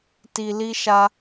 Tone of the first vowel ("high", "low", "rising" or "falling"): low